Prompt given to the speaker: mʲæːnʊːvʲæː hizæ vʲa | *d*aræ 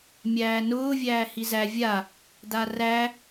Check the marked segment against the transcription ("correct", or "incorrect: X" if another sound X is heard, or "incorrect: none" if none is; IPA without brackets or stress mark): correct